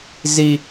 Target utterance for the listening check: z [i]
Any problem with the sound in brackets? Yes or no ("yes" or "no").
no